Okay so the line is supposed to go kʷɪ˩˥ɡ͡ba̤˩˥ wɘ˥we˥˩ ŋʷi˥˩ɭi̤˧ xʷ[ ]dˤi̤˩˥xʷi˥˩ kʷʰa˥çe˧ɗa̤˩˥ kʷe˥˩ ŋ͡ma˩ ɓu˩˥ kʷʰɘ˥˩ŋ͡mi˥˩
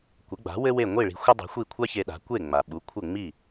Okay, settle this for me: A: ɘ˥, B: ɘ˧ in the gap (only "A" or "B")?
A